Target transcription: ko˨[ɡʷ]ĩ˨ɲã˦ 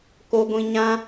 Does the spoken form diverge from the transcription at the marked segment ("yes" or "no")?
no